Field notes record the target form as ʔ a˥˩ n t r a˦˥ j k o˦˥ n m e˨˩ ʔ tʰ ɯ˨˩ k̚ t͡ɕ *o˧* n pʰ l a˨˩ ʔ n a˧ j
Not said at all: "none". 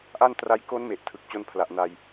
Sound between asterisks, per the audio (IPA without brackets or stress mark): o˧